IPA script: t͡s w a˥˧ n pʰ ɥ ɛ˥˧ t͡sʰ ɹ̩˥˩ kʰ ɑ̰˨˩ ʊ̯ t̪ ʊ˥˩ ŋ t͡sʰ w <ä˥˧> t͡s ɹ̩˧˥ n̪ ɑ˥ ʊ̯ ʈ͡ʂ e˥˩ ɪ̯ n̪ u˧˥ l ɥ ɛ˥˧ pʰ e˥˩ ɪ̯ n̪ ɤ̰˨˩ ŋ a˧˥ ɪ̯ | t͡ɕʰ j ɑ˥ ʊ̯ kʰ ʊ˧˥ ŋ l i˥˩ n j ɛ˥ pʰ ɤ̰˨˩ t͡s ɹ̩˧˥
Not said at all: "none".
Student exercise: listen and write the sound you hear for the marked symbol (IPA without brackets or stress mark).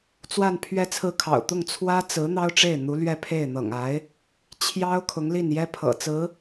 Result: ä˥